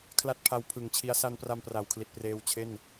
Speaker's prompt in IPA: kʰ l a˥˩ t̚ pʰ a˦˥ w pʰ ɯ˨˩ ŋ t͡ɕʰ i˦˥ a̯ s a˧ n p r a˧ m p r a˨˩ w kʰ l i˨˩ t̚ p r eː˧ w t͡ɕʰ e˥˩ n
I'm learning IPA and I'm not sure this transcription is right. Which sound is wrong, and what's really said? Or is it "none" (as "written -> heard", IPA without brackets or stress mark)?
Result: none